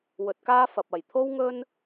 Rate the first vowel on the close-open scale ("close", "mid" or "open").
mid